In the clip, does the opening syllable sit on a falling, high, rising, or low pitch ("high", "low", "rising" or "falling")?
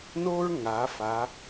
high